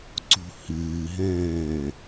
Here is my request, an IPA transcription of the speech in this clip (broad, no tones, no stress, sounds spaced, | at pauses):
ǀ ṳ h ɨː ɦ ɛ̃ː